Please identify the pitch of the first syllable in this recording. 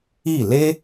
falling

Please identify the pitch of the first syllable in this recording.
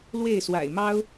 falling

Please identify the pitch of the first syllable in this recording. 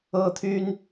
high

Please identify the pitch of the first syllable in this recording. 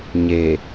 low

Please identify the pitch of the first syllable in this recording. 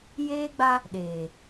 high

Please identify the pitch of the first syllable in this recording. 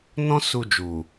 high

